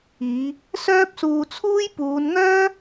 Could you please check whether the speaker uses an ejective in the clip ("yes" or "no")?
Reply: no